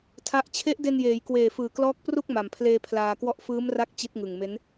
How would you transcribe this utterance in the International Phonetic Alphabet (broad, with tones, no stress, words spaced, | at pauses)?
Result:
tʰa˦˥ʔ t͡ɕʰe˦˥ʔde˧njeː˩˦jkweː˨˩ fɯː˨˩klɔː˦˥k̚pru˥˩k̚ ma˨˩mpʰleː˧ pʰlaː˧kwɔ˥˩ʔ fɯː˦˥mra˦˥k̚ t͡ɕi˦˥t̚ŋɯ˨˩ŋme˦˥n